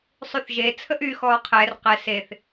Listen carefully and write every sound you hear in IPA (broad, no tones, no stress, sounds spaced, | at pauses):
sˤ y θ ʒ e t͡sʰ ə ʔ y x ɔː qʰ ɛ r q ɛ s e θ